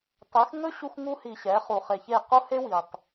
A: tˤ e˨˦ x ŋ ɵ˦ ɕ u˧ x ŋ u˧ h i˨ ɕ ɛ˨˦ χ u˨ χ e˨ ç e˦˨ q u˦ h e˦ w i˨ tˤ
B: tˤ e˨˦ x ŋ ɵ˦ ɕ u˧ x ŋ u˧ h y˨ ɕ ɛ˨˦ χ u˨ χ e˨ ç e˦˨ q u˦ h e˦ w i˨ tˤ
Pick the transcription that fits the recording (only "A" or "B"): A